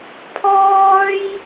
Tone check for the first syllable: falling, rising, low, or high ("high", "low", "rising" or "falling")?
high